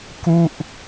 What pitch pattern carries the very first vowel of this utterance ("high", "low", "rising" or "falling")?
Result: falling